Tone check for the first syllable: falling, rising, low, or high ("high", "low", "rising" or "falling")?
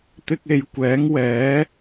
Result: high